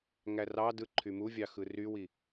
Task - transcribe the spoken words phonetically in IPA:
ŋ æ r ɑ d ɯ ǃʰ y m u vʲ ɑ x ɯ r y w i

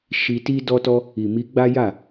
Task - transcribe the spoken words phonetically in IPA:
ʃ i˧ t i˦ d ɔ˦ t ɔ˦ | i˨ m i˧ ɡ͡b a˦ j a˦˨

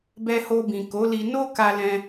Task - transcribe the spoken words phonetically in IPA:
b ɛ˧ h o˧ b ĩ˨ k o˨˦ l i˧ n o˦ k a˧ l ɛ̃˧

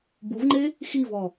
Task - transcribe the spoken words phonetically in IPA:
b u v ŋ͡ǃ e | x i v ɔ

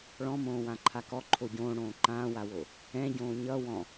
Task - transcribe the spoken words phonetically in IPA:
ɭ ɔ̃ m õː w ã ǃʰ a k ɔ ǃʰ o ɟ õː ɽ õː ǃ ãː w a w o | ɛ̃ ɟ õː ɲ ʌ w ɔ̃

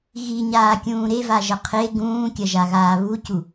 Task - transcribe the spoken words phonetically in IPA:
ɣ i ɲ aː kʲ ũː ɾ e v a ʒ ɐ qʰ e ɡ ũː kʲ ɐ ʒ a ɣ aː β u c u

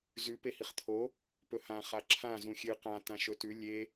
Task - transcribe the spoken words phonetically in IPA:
z ʉ p e h i χ t̪ʰ o | p ɵ h ã χ a ǁʰ ã z ũ xʲ ɨ q ã t ã ʃ ɵ t ʉ lʲ e

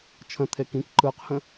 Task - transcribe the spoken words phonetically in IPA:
t͡ʃʰ ə̃ t̪ʰ e k ĩ k ǃ ɯ q h ə̃

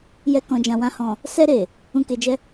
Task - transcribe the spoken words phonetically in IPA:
j ɛ˨ k ɔ̃˨ d͡ʒ ã˨ w ã˨ h ɔ̃˨ | s ɛ˧ ɾ e˨ | ũ˧ k e˧ d͡ʒ ɛ˦

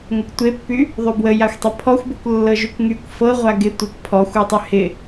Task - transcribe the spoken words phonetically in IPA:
ŋ ə kʷ tʷ e pː y | ðˤ y b w ə j a xʷ tˤ ə pʰ ɔ xʷ b ɤ kʷ lː ɤ ʒ y kʷ ŋ y kʷ f ɤ ʁʷ a ɡ ɪ tʷ e kʷ pʰ ɔ xʷ ɤ tˤ y h ɪ

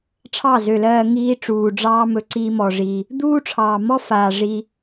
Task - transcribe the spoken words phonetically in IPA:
ʈ͡ʂʰ ɑ˦˨ z ø˨ l ɜː˧ ŋ iː˦ ʈ͡ʂ uː˨ ɖ͡ʐ ɑː˦ m ɵ˧ ǀ iː˦ m ɔ˧ ʐ i˧ | d̪ uː˦ ʈ͡ʂʰ ɑː˨ m ɔ˦ f aː˨ ʐ i˧

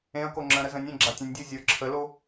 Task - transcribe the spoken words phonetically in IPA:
ẽ ɐ̯ k o ŋ͡ǁ ə̃ ɾ ə z ə̃ nʲ ẽ ɡ͡ǁ a tʲ ə̃ nʲ dʲ u zʲ ə˞ ǁʰ ə l o

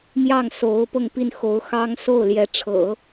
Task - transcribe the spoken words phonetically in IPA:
m j ɑ˥˩ ŋ s o˧˥ ʊ̯ p ɤ˥˧ ŋ p i˥˩ n x o˧˥ ʊ̯ x ɑ˥ ŋ s o˥˩ ʊ̯ l j ɛ˧˥ ʈ͡ʂʰ ɤ̰˨˩˦

